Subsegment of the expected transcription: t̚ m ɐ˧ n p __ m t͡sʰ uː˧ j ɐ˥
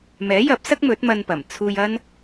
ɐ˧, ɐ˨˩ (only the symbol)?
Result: ɐ˨˩